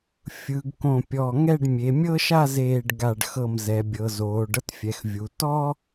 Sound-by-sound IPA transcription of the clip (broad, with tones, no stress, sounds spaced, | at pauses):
fʲ ɯ˩˧ ɡ k õ˧˩ pʲ ɔ˧˩ ŋ ɛ˥˧ ɖ mʲ e˩˧ mʲ ɤ˥ ʃ a˥˧ z eː˧˩ ɖ ɡ a˧˩ ɖ x ɤ˧˩ m z ɛ˩˧ bʲ ɤ˩˧ z oː˩˧ ɖ ɤ˥ t fʲ ɛ˩˧ x vʲ u˩˧ t ɔ˥